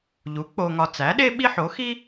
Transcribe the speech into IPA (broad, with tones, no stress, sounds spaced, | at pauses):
ʎ u˩˥ k͡p o˧ ŋ ɒ˧ t͡s æ˩˥ ɗ e˥ ɓ i˥ ħ o˩˥ x i˥